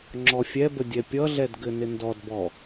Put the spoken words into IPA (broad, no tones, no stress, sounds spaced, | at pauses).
ŋ͡ǁ ɔ fʲ ɛ b ə dʲ ɛ pʲ ʌ ɮ ɛ d ɡ ɘ n ɪ n d ɔ d b ɔ